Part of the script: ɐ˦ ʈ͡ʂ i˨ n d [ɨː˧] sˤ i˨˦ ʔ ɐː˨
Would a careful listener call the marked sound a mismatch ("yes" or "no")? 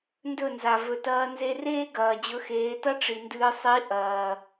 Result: no